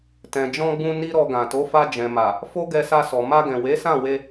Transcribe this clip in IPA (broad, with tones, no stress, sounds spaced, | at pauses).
t ɛ̃˨ d͡ʒ ɔ̃˧ ɡ͡b ũ˧ n i˦ ɾ ɔ˧ ɡ ã˨ t o˨˦ f a˧ d͡ʒ ɛ̃˨ m a˨ | f o˦ ɡ ɛ˧ s a˧ s ɔ˨ m a˧ ɡ ɛ̃˨ w e˨˦ s ã˦˨ w e˧